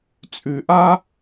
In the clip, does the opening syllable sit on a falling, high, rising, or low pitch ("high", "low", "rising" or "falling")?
low